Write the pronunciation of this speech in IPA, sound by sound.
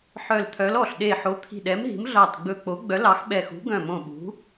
ħ œ˧˩ l t̪ʰ œ˨˥ l ɔ˧˩ ɬ ɗ e˧˩ ħ o˨˥ t̪ʰ i̤˧˩ ɗ ɛ˨˥ m ɦ i̤˨˥ m ɮ ɑ˧˩ t ɡ͡b ɵ˧˩ k͡p o˨˥ ɡ͡b œ˨˥ l ɑ˨˥ x ɓ ɛ˧˩ x ṳ˨˥ ɡ œ̃˧˩ m õ˧˩ ɓ ṳ˨˥

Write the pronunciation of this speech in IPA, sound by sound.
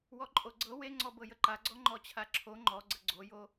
w ɔ ǃʼ o ɡ͡ǀ ɤ w e ŋ͡ǀ ɔ b ɤ j ə ǃ a ɡ͡ǀ ɔ ŋ͡ǃ ɔ t͡ɕʰ a ǁʰ o ŋ͡ǃ ɔ ɡ͡ǀ ə ɡ͡ǀ o j o

